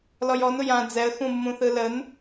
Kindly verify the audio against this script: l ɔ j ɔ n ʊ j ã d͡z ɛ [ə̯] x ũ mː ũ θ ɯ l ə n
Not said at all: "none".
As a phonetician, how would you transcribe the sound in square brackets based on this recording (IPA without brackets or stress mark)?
ə̯